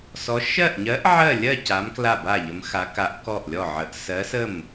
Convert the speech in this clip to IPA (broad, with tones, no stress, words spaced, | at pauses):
sɔ˧˥ ʃɜ˥˨ʔɲɜ˧˥ʔ ʕɜ˥˨lʲɜ˥˨ ca˧˥m kla˥˨ba˥˨ʎə˧˥mxa˧˥ ka˧˥ʔkɔ˥˨ʔlʲɔ˥˨ʕə˧˥ʔ sɜ˧˥sə˥˨m